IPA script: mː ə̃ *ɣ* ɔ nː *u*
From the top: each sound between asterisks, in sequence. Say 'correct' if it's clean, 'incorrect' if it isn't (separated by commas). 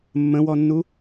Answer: incorrect, correct